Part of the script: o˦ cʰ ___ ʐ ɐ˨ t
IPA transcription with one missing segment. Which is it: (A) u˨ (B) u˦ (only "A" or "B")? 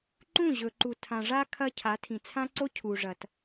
A